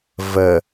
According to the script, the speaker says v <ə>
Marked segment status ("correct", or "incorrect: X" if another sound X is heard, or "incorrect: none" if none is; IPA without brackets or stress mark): correct